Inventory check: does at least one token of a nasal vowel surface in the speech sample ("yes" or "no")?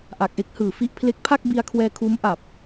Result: no